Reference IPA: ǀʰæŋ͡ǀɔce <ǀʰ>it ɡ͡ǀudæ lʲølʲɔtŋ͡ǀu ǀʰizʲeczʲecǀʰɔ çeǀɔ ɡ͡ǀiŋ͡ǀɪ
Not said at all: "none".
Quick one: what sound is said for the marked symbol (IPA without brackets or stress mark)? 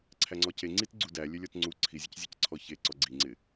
ŋ͡ǀ